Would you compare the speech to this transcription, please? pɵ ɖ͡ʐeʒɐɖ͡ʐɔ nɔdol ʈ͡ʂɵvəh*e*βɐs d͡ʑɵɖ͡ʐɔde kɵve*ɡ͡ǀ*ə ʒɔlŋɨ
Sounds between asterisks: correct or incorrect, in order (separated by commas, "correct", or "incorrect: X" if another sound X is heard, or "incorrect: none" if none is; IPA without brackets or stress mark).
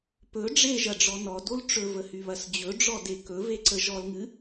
incorrect: y, incorrect: ǀ